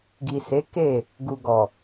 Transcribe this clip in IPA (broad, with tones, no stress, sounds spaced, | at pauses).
ɡ i˨ s e˨˦ k e˦˨ | ɡ u˨ ɡ ɔ˨